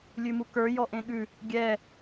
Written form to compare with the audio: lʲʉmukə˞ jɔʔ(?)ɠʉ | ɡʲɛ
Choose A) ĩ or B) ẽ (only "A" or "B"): B